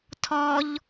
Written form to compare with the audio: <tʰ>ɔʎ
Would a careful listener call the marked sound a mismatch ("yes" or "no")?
no